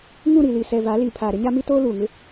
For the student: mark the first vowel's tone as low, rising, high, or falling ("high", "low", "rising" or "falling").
falling